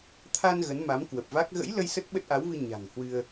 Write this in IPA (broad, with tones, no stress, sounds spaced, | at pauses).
t̪ʰ a˧ n ɣ ə˨˦ n m a˨˦ m k w ə˨˩ p̚ v a˦˥ k̚ ɣ ə̰˧˥ j l ə˧ j s ə˦˥ t̚ ɓ ə˦˥ t̚ ʔ a˨˦ w v ɨ˧ ɲ a̤˨˩ ŋ h w ɨ˧ ə̯